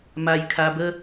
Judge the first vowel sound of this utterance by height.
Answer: low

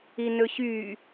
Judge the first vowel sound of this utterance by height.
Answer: high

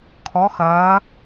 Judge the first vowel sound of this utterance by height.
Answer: mid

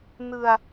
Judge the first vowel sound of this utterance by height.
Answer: high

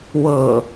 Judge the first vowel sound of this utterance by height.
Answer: mid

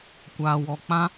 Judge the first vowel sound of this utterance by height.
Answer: low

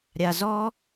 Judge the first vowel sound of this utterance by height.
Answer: low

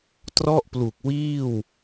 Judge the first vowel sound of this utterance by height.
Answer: mid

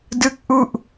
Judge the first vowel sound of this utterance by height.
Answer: high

